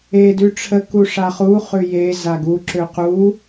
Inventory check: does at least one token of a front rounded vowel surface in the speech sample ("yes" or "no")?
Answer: yes